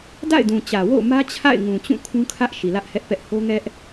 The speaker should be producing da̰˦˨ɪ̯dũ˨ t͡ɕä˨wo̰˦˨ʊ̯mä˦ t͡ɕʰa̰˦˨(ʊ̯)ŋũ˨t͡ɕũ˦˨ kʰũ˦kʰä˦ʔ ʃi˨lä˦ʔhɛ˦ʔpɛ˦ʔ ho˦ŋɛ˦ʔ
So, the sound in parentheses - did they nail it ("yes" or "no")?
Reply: no